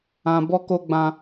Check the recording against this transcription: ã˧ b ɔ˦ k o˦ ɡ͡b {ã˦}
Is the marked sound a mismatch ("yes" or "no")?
no